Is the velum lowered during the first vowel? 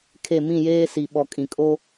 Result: no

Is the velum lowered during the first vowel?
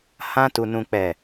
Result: yes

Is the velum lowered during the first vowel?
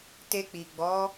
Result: no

